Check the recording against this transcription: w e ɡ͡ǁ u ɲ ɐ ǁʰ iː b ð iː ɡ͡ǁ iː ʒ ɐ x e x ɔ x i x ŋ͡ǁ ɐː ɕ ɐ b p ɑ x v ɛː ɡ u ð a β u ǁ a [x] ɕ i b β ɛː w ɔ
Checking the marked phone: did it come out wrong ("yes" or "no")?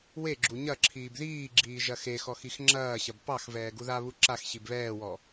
no